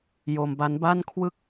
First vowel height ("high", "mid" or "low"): mid